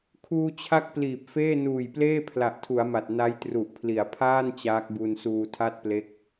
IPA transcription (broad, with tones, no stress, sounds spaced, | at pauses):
kʰ uː˧ t͡ɕʰ a˦˥ k̚ p l iː˨˩ p̚ f eː˥˩ n uː˨˩ j p l eː˥˩ pʰ l a˨˩ ʔ tʰ u˩˦ a̯ m a˨˩ t̚ n a˦˥ j t r u˨˩ ʔ pʰ l i˩˦ a̯ pʰ aː˥˩ n t͡ɕ aː˦˥ k̚ b u˧ n s uː˧ tʰ a˥˩ t̚ p l e˦˥ k̚